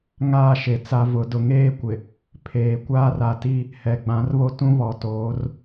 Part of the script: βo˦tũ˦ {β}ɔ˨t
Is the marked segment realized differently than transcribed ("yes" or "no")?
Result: no